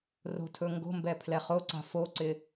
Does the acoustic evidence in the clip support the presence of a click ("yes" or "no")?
yes